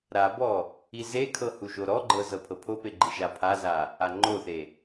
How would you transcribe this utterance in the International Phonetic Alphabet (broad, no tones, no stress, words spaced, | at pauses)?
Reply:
ɾabɔ | izekʰɤ huʒoɾɔɡ͡ǃɤ zɤpʰɤpʰope ɡ͡ǃiʒapʰaza | aŋ͡ǃoθe